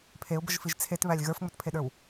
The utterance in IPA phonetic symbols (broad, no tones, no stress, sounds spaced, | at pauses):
pʰ e ʊ̯ b ə ʒ f i ʒ t͡sʰ e t β æ lʲ ɣ ə˞ f ŋ͡m ə t pʰ e ɗ ə˞ w